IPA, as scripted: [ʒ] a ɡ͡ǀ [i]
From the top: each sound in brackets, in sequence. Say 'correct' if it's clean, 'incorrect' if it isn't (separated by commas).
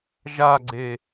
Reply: correct, incorrect